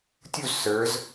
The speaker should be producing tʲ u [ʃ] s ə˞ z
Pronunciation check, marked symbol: incorrect: z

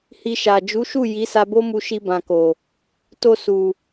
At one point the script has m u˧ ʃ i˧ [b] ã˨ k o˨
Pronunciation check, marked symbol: correct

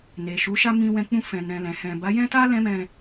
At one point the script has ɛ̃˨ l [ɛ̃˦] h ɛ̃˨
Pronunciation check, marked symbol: incorrect: ɛ̃˨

